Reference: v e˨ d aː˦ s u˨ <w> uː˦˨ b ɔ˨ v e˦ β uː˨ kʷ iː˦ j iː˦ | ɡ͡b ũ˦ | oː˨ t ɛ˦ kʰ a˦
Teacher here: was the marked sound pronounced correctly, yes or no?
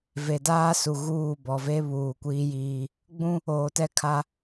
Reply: no